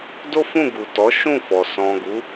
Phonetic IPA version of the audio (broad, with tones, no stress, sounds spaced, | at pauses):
d o˦ f ũ˦˨ ɡ u˨ t ɔ˨˦ ʃ ũ˦˨ f ɔ˨ s ɔ̃˨ ɡ u˨˦